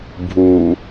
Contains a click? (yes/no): no